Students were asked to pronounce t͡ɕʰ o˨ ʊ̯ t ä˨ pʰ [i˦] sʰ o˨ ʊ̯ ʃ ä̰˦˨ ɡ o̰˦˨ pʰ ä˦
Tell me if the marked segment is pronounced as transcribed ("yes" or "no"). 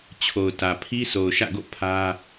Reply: yes